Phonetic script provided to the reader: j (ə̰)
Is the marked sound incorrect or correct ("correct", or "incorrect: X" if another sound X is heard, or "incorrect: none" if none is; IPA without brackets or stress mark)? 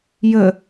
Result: incorrect: ə